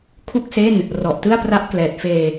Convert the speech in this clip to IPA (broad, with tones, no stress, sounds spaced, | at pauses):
kʰ u˥˩ k̚ s e˥˩ n | r ɔ˨˩ ʔ t ɯ˥˩ a̯ p r a˦˥ ʔ k l ɛː˨˩ t̚ f eː˧